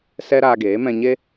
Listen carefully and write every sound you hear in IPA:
s ɛ˦ ɾ aː˧ ɡ eː˨˦ m ɛ̃˧ ɲ e˦

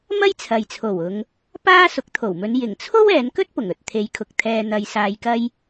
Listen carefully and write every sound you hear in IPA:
m ɐ˥ j t͡sʰ ɐ˨ j t͡sʰ o˨˩ w ʊ˨˧ ŋ | p aː˥ s ʊ˨˥ k̚ t̪ʰ o˨˩ w m ɵ˨˧ n j ɪ˨˩ ŋ t͡sʰ o˥ w ɛː˨˧ n k ɵ˥ t̚ p ʊ˨˩ ŋ ɵ˨ t̚ t̪ʰ e˨˧ j kʰ ʊ˨ k̚ t̪ʰ ɛː˨ n̪ ɐ˨ j s aː˨ j k ɐ˧ j

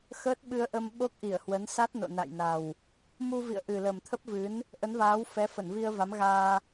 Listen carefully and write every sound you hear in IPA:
x əː˦˥ t̚ ɓ ɨ˧ ə̯ ʔ ə˧ m ɓ o˦˥ k̚ ʔ i˧˩ ə̯ h w ə˨˦ n s a˦˥ t̚ n o̰˧˨ n a̰˧˨ j n a˨˩ w | m u˧ v ḭ˧˨ ə̯ ʔ ɨ˨˩ l ə˨˩ m t̪ʰ ə˦˥ p̚ v ɨ˨˦ n | ʔ ə˨˦ n v aː˨˦ w f ɛ˨˦ f ə˧˩ n v i˧ ə̯ v a˨˦ m ɣ aː˧

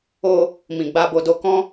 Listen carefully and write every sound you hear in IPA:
o˧ | m ĩ˨ ɡ͡b a˧ b o˧ d o˧ k ɔ̃˦

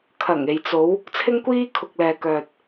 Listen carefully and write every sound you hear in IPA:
kʰ ɐ˨˩ ŋ e˨ j t͡s o˨˧ w | t͡sʰ ɪ˧ ŋ kʷ iː˧ kʰ ʊ˨ k̚ l ɛː˨ k œː˨ t̚

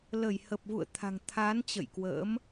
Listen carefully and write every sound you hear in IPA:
l ə˧˩ j h ə˨˩ p̚ v ṵ˧˨ ə̯ t̪ʰ a̤˨˩ ŋ t̪ʰ aː˨˦ n t͡ɕ ə̰˧˨ j k w ə̰ː˧˥ m

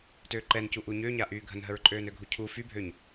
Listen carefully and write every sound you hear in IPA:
t øː ǃ ɛ n c u ʔ u ɲ ø ɲ a ʔ yː ɡʱ ə n ɦ ə ɹ ǃʼ øː n ø ɡʱ u cʰ u f y bʱ ø ɲ

